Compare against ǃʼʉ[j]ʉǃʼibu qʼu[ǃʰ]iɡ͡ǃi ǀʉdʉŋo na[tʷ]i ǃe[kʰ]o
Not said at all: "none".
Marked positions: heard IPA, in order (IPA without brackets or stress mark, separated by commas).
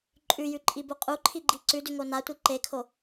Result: j, ǃʰ, tʷ, kʰ